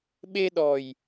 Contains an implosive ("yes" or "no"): yes